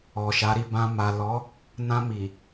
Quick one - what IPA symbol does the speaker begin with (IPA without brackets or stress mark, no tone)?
ɔ